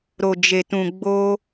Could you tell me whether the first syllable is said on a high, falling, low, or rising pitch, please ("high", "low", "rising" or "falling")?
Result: low